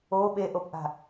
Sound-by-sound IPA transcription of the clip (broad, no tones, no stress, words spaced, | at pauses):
o ɓeʔopʔa̤